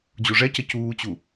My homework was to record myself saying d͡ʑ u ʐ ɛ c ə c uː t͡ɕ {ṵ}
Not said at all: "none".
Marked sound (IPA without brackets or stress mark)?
u